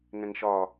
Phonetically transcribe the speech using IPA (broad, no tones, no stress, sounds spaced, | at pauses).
ŋ ɛ̃ ŋ ʃ ɒ